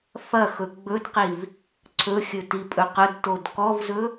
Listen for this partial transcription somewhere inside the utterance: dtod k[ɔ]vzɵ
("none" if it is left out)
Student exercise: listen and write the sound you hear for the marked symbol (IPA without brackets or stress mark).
ɔ